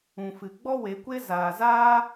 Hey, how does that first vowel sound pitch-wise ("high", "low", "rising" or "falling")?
low